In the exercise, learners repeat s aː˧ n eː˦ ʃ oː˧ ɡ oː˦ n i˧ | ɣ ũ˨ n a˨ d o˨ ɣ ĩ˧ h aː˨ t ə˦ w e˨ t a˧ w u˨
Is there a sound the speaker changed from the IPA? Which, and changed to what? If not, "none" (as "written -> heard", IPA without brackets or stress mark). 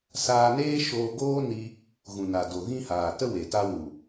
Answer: none